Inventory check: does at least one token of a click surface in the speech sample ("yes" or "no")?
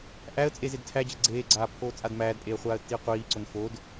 yes